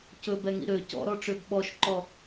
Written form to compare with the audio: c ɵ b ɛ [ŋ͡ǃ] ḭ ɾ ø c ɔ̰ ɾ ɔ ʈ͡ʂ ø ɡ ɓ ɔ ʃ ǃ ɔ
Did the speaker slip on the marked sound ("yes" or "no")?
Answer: yes